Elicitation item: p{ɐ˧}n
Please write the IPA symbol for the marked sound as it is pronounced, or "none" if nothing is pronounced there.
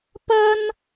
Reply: ɐ˥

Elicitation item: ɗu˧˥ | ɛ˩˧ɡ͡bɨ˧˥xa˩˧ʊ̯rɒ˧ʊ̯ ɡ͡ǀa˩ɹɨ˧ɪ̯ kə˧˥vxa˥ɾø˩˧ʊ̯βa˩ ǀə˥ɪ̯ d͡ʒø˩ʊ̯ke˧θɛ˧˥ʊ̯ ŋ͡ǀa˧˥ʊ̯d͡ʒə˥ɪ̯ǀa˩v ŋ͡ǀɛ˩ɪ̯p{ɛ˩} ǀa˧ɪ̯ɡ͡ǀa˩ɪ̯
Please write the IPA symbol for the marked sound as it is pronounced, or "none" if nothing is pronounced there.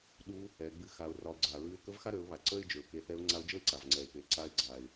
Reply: e˩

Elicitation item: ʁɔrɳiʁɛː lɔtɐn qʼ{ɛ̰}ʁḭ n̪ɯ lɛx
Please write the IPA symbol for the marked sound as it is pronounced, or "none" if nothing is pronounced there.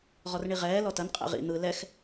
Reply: ɛ̰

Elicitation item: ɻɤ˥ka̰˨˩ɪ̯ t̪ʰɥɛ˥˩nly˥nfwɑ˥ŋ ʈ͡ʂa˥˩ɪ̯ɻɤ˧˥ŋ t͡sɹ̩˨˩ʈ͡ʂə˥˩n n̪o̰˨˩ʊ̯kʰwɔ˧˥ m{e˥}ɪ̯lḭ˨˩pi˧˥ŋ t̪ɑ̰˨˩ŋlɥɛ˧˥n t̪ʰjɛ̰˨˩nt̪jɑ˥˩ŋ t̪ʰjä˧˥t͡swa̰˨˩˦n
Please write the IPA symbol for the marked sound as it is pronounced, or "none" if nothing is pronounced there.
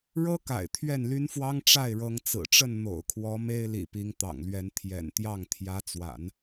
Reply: e˥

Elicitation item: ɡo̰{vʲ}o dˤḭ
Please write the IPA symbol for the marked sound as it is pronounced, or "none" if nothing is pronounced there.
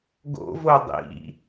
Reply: v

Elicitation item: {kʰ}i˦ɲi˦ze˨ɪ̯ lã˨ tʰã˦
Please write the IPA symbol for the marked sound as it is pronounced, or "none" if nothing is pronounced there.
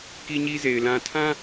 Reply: k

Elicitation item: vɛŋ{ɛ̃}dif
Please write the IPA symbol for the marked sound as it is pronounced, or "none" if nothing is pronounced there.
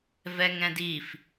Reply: ɛ̃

